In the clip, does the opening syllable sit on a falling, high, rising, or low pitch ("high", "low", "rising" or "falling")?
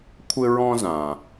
high